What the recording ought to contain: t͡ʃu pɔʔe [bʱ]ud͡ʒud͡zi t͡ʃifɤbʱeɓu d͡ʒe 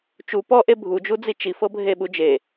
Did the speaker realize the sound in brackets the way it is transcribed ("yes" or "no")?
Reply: yes